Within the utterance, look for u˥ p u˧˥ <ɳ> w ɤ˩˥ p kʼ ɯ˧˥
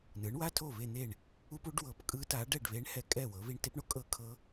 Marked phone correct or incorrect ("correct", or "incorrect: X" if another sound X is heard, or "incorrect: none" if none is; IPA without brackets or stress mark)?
incorrect: ɖ